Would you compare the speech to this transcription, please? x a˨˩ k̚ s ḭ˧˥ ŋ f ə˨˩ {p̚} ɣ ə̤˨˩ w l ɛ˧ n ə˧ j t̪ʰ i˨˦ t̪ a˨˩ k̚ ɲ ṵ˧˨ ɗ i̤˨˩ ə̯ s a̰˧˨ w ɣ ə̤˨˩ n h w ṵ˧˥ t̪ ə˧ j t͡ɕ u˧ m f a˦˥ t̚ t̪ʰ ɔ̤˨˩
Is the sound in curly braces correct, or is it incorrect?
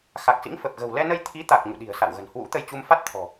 correct